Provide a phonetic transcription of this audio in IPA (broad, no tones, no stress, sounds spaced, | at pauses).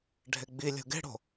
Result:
ɖʱ e ɡ͡b i lʲ o̤ ɡ e̤ ɽ o̤